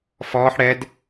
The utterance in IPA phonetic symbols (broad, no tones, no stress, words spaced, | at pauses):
fɔːħ ɽɛd